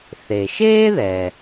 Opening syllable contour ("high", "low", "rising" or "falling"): low